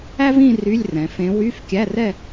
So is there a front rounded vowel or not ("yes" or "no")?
yes